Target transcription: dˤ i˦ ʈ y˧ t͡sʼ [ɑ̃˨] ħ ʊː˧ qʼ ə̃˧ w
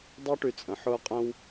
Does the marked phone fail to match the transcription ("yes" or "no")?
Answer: yes